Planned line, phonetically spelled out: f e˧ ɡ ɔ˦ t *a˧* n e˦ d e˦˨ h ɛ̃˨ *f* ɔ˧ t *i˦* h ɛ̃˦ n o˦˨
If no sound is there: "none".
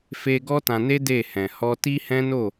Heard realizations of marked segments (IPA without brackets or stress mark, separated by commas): ã˧, h, i˦